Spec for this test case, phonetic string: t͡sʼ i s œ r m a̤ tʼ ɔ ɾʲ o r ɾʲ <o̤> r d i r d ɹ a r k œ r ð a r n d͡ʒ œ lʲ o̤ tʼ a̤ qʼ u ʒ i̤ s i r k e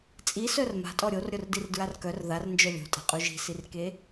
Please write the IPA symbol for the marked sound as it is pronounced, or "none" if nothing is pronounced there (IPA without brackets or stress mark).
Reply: o